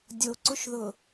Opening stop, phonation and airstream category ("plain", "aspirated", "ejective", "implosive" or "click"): plain